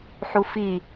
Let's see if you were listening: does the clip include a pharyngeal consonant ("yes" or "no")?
yes